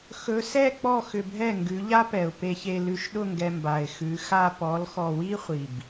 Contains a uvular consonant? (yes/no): yes